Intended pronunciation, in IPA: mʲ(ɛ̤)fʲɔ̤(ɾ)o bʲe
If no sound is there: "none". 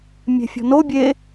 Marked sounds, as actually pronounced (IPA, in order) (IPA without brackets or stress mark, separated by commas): ɛ̤, n